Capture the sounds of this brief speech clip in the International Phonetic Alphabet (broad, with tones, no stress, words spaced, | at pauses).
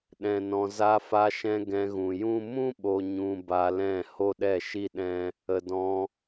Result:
ɗɛ̃˨nɔ̃˨ za˧fa˧ʃɛ̃˧ ɡɛ̃˧ɣũ˨jũ˦ mũ˦ɓo˨ɲũ˨ ba˧lɛ̃˦˨ ho˦ɗɛ˦˨ʃi˦ɗɛ̃˦ | ə˨dɔ̃˧